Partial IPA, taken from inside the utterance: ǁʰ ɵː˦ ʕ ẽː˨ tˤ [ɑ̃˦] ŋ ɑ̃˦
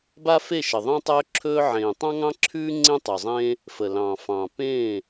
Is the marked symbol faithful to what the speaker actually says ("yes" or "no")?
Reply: yes